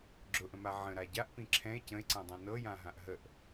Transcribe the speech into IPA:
ɡ͡ǁ ʊ ʔ ə̃ m a ʕ ə̃ ɾ a ɟ a ʔ p ĩ ǁʰ ɛ̃ e̯ c ə̃ e̯ ǀ ã dˤ ɛ̃ n ɤ j ã ɦ ã ʔ ɦ ə ʔ

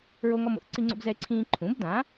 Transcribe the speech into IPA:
ɹ o˦ ŋ ɔ˦ m o̰˩˥ θ ǀ i˦ ŋ͡ǀ o̰˦ b z ɛ˦ e̯ ǀʰ ĩː˦ ǃʰ ũ˩˥ b d ã˩˥

